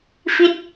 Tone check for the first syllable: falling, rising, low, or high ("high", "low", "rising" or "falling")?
falling